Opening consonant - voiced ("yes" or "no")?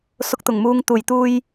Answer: no